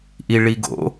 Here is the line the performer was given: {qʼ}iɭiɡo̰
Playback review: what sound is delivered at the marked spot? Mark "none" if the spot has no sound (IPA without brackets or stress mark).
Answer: ʔ